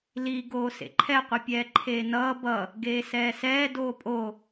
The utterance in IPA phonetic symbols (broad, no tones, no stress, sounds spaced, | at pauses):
l i ɡ oː s ḛ ǃʰ ɛ qʷ ʌ pʲ ɛː ǃʰ eː n ʌː b ʌ | ɡ eː s ɛː s ɛː d oː pʼ o